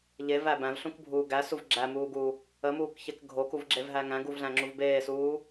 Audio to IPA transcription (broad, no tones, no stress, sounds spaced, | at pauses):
ʎ e v æ b æ̃ v ɬ ũ k bʱ uː ɡ æ s u v ɡ͡ǁ æ m uː ɡ uː | ə m uː k ç ɛ k ɡʱ o k u v ɡ͡ǁ e v ɦ æ ŋ æ̃ ɡ u v ɮ æ̃ ŋ͡ǁ u v b eː s uː